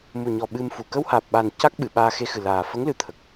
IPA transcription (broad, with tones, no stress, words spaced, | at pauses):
mu˨˩ɲɔ˨˩ ɓɨ˧mfu˨˩ kə˧whaː˨˩p̚ɓa˨˩n ca˦˥k̚ɓɨ˨˩˨ ɓaː˧xe˧xɨ˨˩laː˨˩ fə˧˥ŋlɨ˨˩˦t̪ʰə˨˩k̚